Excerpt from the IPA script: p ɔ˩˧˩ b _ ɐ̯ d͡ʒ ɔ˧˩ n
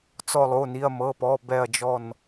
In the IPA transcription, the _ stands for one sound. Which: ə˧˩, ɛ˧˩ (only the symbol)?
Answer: ɛ˧˩